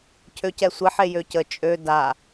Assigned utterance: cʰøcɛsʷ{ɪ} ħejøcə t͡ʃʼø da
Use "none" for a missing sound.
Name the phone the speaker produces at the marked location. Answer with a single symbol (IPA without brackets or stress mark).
ɪ